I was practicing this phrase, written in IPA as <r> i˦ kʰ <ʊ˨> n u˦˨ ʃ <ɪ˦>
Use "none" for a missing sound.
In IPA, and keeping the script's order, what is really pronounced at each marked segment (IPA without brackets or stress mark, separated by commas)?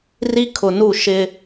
r, ʊ˨, ɪ˦